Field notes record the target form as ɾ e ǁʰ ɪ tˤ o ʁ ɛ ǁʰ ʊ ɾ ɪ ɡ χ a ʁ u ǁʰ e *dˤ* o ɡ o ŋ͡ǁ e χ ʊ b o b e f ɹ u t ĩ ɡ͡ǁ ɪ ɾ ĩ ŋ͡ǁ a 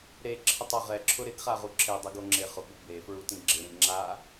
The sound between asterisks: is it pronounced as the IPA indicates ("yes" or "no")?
yes